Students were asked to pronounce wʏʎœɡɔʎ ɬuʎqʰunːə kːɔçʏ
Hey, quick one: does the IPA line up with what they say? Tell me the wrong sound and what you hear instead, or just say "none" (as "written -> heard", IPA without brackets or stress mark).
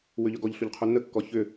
none